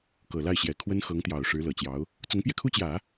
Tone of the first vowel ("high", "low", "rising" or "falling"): low